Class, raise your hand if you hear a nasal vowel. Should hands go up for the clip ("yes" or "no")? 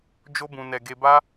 yes